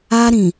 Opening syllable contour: high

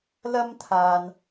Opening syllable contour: high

